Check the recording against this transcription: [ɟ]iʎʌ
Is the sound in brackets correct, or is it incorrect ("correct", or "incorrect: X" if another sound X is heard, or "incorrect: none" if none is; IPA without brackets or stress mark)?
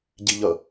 correct